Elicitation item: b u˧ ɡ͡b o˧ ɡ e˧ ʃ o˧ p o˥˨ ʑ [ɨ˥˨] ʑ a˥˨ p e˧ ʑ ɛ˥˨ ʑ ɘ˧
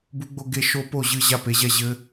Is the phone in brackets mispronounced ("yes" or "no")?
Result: no